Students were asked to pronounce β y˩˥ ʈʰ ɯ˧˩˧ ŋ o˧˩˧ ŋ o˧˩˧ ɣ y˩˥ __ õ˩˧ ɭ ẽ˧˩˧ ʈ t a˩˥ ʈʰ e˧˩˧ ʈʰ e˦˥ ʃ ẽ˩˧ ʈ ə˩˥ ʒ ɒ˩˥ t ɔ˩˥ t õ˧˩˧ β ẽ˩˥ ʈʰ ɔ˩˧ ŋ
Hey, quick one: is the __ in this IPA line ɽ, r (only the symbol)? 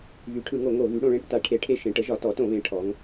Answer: ɽ